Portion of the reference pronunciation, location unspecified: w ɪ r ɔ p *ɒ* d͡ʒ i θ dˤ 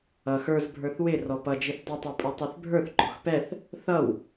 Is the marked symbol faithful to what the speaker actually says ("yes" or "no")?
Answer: no